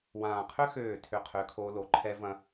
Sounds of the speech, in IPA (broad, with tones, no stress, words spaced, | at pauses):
wãː˨qʰʏ˦ xøː˦˨tʰʏ˦˨ qʰʏː˦kʰoː˦lo˨˦ ǃʰɛ˦vɐ̃˦